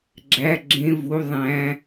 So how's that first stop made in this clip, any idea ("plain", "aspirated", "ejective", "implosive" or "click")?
click